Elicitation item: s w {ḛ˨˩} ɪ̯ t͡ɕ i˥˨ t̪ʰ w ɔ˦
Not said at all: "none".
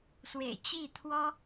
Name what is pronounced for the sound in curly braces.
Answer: ḛ˨˩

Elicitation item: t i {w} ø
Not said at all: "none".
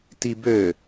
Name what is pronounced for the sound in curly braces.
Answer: b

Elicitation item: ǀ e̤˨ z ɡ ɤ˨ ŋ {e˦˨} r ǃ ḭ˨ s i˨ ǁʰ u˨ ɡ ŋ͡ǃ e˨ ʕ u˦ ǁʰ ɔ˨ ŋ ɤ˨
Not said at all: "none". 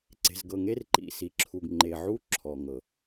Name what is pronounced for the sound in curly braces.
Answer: e˦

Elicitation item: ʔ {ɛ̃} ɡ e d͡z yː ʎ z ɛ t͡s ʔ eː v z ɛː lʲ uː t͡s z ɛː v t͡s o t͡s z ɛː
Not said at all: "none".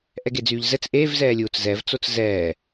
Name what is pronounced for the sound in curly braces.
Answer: ɛ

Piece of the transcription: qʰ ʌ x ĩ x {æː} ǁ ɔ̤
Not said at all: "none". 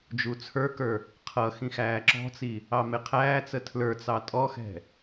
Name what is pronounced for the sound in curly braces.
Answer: æː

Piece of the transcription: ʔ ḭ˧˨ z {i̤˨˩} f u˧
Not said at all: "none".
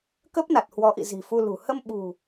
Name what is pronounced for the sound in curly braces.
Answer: i̤˨˩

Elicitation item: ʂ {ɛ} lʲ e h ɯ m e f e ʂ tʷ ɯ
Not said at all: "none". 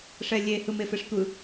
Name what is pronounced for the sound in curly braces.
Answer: ɛ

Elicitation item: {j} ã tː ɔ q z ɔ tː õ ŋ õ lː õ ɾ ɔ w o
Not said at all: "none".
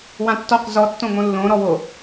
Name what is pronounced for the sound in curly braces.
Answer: w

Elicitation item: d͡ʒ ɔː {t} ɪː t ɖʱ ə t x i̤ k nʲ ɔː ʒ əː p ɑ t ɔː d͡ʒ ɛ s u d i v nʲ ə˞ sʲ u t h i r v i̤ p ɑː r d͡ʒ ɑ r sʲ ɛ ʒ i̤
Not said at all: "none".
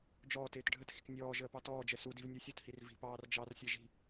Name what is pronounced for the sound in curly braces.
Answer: t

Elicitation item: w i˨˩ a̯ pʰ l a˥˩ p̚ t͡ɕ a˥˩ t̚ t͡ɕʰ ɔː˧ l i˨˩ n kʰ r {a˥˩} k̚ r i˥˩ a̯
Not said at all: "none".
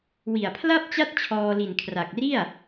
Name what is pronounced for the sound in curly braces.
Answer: a˨˩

